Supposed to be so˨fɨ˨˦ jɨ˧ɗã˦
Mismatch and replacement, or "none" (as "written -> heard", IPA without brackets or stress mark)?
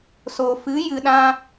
none